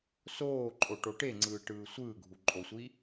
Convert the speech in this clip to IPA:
s oː ǃʼ o ʈ o ʈ e ŋ͡ǀ ɯː ʈ ɯː sʷ ɯː ɡʱ u ǃʼ o sʷ i

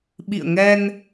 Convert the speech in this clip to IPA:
ɓ ḭ˧˨ ə̯ ŋ ɛ˧ n

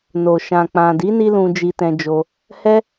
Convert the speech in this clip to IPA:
n o˨ ʃ ã˨ k͡p ã˨ d i˨˦ n i˧ l ũ˧ d͡ʒ i˧ t ɛ̃˧ d͡ʒ o˧ | h ɛ˦

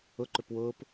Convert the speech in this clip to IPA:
ʊ ǃ ʏ p w ʊː p

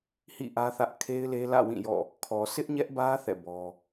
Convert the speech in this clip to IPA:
h ḭ˦˨ ʔ ä˦ θ ä˦ ʔ kʰ e˦ ɪ̯ l e˦ l ä̰˦˨ w ĩ˦˨ j ɔ̰˦˨ | kʰ ɔ˨ sʰ ɪ˦ ʔ ɲ ɛ˦ ʔ b ä˦ θ ɛ̰˦˨ b ɔ˦

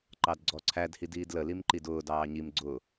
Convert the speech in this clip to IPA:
ǃ ɑ d ɡ͡ǀ ɔ ǀʰ æ d h i d iː d l ə l i m ǃ i d ʊː d ɑː ɲ i m ɡ͡ǀ ʊ

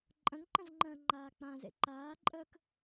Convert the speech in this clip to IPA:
ǃʼ ə̃ ŋ ǃ ə̃ z ŋ͡ǃ ə̃ː ŋ͡ǃ aː k͡p ã z ḛ ǃ aː ǃʼ əː k

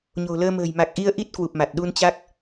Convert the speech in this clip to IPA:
ɲ o̤˨˩ l əː˧ m ə̤ː˨˩ j m a˨˩ k̚ ʔ i˧ ə̯ ʔ i˦˥ t̚ k w u˨˩ p̚ m a˨˩ t̚ ɗ u˧ n t͡ɕ a˦˥ k̚

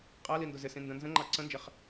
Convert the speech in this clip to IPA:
qʼ æ l i n d ʊ z ɪ s ĩ n d ə̃ n z ə̃ ŋ͡ǃ ɑ ǀ ə̃ n d͡ʒ ɪ χ

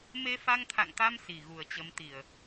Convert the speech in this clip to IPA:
m e˧ f a˧ ŋ t̪ʰ a̰˧˨ ŋ t̪ a˧ m s i˨˩ ɣ u˨˩ ə̯ t͡ɕ ə˨˦ m t̪ i˨˩ ə̯

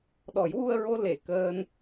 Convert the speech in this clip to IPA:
ɗ ɔ˨˩˦ j w u˧ ə̯ ɹ o˧ l e˨˩˨ k əː˧ n

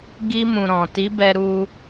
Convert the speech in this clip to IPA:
ɡ i˧ m ũ˨ ɾ ɔ̃˨ t i˨˦ b ɛ˧ ɾ u˧

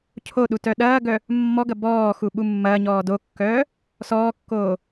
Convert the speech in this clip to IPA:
cʰ o ɗ u t œ ɗ ɐː ɡ œ | mː ɔ ɡ ɐ b ɔː x u ɓ u mː ɐː ɲ ɔː d o kː œː | s ɔː kː oː

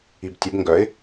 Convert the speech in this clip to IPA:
i b tʲ ə b ŋ ɡ œ ɪ̯

